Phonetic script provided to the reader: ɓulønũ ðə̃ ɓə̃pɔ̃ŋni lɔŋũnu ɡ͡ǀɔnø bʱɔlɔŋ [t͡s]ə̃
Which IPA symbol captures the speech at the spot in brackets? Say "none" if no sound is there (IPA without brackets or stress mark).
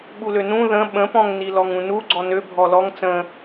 t͡s